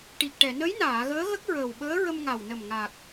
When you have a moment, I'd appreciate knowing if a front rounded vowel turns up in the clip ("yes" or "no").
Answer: no